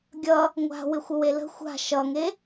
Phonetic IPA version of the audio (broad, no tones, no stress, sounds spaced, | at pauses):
ɡʲ ʌ | ŋʷ a̤ w ɪ xʷ ə w e l ə̤ xʷ a̤ ʃ ʌ ŋ e